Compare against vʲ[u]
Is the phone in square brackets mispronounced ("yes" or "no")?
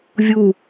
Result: no